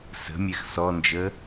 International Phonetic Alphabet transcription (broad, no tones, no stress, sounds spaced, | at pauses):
s ə̤ mʲ ɛ x s ɔ n d͡ʒ ə